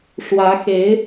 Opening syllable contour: rising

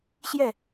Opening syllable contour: falling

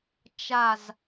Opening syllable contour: falling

